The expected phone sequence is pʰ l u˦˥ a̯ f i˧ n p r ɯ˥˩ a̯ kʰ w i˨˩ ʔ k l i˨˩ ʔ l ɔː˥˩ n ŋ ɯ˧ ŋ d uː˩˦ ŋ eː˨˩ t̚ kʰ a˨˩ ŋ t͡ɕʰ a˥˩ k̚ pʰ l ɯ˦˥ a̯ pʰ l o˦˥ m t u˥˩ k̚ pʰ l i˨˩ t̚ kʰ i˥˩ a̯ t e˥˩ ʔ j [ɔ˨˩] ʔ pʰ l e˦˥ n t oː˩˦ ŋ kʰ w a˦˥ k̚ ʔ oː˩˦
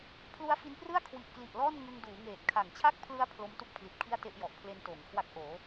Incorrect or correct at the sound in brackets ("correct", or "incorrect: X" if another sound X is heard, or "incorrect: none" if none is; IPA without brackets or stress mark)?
correct